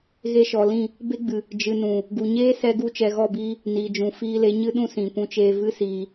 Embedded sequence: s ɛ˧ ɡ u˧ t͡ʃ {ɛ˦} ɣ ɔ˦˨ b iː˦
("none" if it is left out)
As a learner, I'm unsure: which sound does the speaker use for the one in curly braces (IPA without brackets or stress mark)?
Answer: ɛ˨